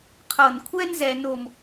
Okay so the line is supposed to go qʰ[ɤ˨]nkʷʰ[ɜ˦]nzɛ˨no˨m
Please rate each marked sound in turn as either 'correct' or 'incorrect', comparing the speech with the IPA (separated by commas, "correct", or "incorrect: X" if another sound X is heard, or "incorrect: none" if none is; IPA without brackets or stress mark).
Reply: correct, incorrect: ɛ˦